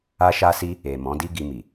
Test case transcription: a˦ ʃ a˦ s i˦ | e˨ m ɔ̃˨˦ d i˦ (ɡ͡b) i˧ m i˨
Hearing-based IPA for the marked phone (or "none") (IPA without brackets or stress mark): ɡ